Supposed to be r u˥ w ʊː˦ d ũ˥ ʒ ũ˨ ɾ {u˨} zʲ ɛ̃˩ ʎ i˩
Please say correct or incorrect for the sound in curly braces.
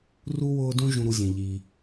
correct